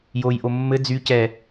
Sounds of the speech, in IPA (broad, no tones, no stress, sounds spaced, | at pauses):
j o j ʔ o mː ɘ d͡z y c ɛ